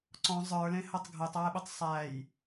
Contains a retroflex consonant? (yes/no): no